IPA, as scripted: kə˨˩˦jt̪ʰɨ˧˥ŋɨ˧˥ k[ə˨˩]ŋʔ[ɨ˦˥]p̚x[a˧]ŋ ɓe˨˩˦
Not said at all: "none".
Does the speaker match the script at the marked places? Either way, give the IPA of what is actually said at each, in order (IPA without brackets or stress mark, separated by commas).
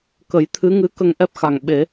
ə˧, ɛ˦˥, a˨˩